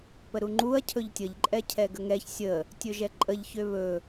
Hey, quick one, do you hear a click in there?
yes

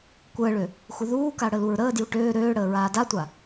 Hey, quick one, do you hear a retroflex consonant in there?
yes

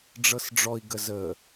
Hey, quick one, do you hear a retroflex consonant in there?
yes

